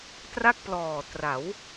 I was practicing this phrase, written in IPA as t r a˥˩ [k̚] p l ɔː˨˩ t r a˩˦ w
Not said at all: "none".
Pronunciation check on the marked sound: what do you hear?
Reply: k̚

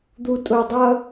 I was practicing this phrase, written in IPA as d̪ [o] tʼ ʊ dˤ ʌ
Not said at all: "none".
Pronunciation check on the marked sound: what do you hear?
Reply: u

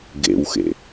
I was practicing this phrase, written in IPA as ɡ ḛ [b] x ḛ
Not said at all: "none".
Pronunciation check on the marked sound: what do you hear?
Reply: w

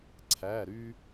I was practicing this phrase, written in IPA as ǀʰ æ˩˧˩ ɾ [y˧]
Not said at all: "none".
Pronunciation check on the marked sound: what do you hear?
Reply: y˧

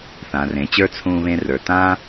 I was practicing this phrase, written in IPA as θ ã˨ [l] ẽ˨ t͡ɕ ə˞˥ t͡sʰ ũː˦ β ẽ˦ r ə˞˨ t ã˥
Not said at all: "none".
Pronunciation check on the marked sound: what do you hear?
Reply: r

